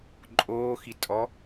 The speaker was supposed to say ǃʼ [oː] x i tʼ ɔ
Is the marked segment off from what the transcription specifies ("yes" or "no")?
no